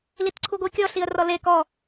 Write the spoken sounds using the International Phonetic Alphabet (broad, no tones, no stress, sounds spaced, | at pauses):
l i t ǀʰ u ɡʷ i kʲ ɔ ɬ i ə̯ r ɔ l e k ɔ